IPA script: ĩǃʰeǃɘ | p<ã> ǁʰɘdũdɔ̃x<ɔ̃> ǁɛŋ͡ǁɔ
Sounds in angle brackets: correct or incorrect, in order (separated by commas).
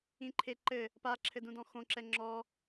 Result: incorrect, incorrect